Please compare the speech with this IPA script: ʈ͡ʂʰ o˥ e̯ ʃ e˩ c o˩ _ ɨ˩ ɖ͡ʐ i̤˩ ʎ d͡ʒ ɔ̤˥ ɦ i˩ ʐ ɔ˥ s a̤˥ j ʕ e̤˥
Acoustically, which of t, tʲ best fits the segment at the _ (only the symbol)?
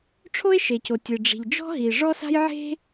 tʲ